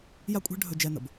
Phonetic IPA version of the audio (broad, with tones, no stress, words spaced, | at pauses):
ja˥kʷʼɛ̤˥ ɖʱɵ˦d͡ʒɛ˦ nə̰˩b